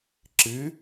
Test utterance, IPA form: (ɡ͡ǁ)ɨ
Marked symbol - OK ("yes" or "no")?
no